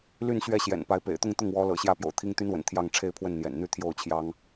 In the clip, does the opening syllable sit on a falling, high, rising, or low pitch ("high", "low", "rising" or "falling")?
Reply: falling